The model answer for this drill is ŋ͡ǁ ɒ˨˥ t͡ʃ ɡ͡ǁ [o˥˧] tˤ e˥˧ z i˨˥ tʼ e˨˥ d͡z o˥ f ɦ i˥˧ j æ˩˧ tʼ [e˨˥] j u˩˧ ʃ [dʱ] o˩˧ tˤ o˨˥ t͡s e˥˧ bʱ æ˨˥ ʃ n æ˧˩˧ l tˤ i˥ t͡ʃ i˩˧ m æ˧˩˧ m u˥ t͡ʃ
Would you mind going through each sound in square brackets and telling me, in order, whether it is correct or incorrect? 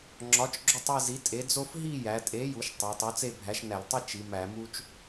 correct, correct, incorrect

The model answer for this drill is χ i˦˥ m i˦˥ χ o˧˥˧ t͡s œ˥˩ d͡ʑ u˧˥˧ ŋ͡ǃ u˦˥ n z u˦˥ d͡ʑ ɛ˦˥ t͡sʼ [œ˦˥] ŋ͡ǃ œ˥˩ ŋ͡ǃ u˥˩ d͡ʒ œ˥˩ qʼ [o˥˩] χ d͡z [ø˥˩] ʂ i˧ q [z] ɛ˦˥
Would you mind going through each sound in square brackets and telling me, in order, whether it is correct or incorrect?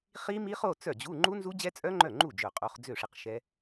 correct, incorrect, correct, incorrect

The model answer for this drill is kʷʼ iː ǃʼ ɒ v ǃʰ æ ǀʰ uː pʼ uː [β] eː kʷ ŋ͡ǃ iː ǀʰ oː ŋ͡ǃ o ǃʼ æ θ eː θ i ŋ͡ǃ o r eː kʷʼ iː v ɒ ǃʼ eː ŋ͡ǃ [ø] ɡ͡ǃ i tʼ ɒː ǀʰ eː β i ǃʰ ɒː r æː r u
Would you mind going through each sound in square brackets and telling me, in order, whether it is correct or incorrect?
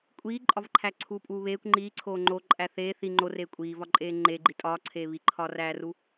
correct, incorrect

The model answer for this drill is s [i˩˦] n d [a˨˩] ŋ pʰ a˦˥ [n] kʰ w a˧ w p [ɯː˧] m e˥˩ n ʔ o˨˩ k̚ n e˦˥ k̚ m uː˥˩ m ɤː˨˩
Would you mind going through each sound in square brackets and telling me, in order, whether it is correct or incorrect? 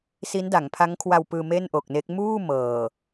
incorrect, incorrect, incorrect, correct

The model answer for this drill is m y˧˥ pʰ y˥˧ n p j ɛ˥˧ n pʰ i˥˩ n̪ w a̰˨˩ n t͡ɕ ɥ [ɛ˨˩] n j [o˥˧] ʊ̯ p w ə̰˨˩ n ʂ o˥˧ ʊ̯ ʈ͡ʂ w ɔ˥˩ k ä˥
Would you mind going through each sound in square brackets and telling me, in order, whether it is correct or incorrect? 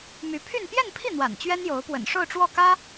incorrect, incorrect

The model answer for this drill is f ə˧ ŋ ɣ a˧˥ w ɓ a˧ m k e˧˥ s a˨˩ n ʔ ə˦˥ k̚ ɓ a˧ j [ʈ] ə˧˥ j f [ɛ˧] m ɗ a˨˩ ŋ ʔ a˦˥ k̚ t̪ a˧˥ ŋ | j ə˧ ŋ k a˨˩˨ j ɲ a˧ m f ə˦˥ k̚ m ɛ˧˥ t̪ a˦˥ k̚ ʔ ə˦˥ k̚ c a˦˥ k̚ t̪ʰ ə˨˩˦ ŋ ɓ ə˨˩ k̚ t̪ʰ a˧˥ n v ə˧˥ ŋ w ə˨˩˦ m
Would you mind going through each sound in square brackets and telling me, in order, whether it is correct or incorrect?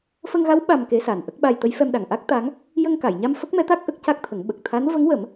incorrect, correct

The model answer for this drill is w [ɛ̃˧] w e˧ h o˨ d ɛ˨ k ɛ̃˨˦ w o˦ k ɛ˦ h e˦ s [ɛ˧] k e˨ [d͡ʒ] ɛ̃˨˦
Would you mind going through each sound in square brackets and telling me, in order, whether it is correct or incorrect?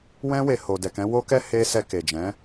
incorrect, correct, correct

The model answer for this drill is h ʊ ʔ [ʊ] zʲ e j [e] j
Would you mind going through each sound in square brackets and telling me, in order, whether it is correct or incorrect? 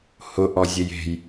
incorrect, incorrect

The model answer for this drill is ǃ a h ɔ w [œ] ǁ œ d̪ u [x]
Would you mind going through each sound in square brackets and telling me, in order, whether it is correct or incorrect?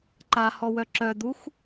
correct, correct

